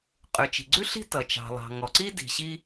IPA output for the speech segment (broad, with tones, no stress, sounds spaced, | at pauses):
qʼ ʉ˩ t͡ʃ i̤˩ ɡ͡ǀ ʉ˥ ɬ i̤˥ t ʌ˩ t͡ʃ ɑ̤˩ lˠ ɑ̤˩ ŋ ɔ˩ ǀ i˥ d i̤˩ ɕ i˥